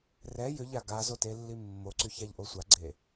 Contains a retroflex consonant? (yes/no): no